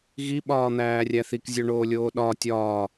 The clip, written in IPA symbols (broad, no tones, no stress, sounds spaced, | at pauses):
ɣ i ɓ ɒː n̪ æː rʲ æ θ i k zʲ o ɳ oː lʲ oː ɗ ɒ tʲ ɒː